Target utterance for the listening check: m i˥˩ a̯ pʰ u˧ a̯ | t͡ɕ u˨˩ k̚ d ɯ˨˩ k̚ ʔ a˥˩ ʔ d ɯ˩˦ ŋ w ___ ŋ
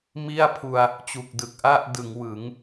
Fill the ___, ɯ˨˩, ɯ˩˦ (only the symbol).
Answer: ɯ˩˦